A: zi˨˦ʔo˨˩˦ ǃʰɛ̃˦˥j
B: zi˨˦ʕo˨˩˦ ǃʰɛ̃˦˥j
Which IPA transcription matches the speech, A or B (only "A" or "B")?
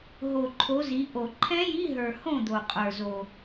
A